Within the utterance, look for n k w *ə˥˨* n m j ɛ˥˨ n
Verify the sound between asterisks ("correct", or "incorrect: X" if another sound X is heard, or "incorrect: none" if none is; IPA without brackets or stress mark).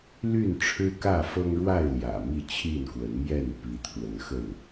incorrect: ə˨˦